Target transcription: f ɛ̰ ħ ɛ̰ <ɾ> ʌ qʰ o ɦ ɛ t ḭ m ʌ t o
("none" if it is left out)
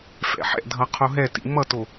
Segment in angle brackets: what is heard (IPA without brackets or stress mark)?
dʱ